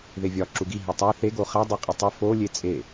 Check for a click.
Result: present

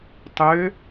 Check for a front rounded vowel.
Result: present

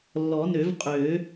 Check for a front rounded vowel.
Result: present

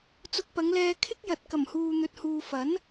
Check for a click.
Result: absent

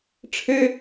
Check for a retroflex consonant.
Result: present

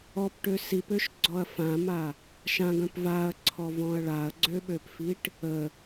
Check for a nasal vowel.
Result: present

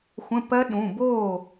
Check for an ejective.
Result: absent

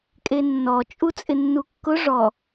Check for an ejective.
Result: present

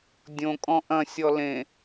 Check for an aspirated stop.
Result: absent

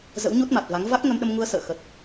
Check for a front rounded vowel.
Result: absent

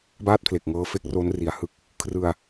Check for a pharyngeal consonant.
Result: absent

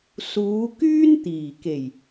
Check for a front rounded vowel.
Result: present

